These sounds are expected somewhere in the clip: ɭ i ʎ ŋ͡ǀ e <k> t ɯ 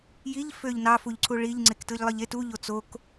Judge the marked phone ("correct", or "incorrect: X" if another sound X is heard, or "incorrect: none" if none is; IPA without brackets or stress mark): correct